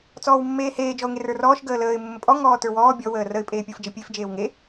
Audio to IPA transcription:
t͡s ɔː w mː eː h eː d͡ʒ ɔ ʊ̯ ŋ e r ə˞ r ɔː ʃ ɡ əː l əː ɪ̯ mː ə pʼ ɔ ŋ ɔː t ə˞ w ɔː bʲ ɔ w əː r ə ɪ̯ pʼ eː pʲ ə˞ f d͡ʒ ə pʲ e f d͡ʒ eː w ŋ e

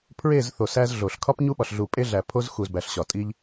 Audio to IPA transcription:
pʰ ɹ e˦˨ z θ o˨ s æ˦ z ɮ o˨ ɬ kʰ ɒ˦ p ɲ u˦ ɓ ɒ˨ ɬ ɮ u˨ pʼ e˦ ɮ æ˨ pʰ o˦ z x u˨ z b æ˨ ɬ ɕ ɒ˨ tʼ i˦ ʎ

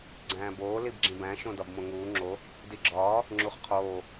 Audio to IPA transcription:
ɡ͡ǀ æ̃ː b oː l i b ɡ͡ǁ ĩ b æ̃ ʃ õ d ɒ b m õ ŋ uː ŋ͡ǁ o | d i ɡ͡ǁ ɒː | ŋ͡ǁ u χ qʰ oː

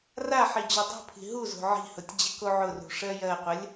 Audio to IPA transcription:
r a ħ i d͡ʑ o dˤ o̤ pʰ i̤ ɦ u z o̤ ʕ i̤ h ʊ tʲ d͡ʑ ə k o ʕ ʊ r ṳ ʂ ɜ j ɜ qʷ ə lʲ

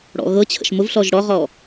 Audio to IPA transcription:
ɽ ɔ̰ ɣ ɤ t͡ɕʰ ə̰ ʃ m ʊ v ɬ ɔ ʒ ɽ ɔ ʁ ɔ

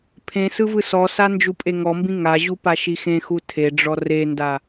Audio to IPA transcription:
pʰ ẽ s ɯ v ɯ s ɔ s a n d͡ʒ u pʼ e ŋ ɔ m b ĩ ŋ a ʑ u p a ʃ i x ẽ x u tʰ e ɖ͡ʐ ɔ r e n d a

